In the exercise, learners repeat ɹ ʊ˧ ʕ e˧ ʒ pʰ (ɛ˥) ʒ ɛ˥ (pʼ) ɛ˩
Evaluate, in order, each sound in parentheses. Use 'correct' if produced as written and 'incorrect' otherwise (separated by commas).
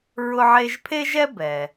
incorrect, incorrect